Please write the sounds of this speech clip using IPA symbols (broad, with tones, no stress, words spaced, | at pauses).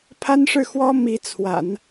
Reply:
pʰa˥nʂɻ̩˥˩xwɔ˥ mi˧˥t͡sʰwa̰˨˩˦n